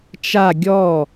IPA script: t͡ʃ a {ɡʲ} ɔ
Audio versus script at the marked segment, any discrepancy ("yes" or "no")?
no